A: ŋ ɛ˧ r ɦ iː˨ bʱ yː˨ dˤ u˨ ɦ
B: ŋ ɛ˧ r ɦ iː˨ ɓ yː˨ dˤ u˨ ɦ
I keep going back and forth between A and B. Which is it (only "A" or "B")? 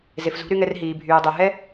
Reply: A